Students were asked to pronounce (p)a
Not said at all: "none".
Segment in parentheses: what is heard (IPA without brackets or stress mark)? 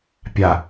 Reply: pʲ